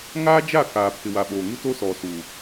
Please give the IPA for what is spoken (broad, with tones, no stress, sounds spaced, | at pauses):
ŋ aː˦ d͡ʒ a˦˨ k aː˨ pʰ ɪ˨ w a˨ ɓ oː˨ ŋ u˦ t o˦ s ɔ˨ s u˨